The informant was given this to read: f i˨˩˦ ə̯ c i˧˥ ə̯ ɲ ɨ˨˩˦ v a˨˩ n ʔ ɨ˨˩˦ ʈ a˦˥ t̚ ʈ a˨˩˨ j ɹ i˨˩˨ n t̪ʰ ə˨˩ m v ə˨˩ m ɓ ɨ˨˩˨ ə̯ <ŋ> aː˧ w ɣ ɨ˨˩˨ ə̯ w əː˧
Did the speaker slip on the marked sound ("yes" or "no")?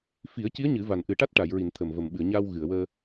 yes